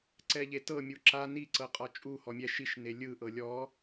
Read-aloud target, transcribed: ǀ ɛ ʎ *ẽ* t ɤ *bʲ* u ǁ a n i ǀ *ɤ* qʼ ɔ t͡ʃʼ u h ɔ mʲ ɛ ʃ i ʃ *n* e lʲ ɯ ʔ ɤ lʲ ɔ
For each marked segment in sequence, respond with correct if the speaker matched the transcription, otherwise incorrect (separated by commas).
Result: incorrect, incorrect, correct, correct